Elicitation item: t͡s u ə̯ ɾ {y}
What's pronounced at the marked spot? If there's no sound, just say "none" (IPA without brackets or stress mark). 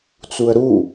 u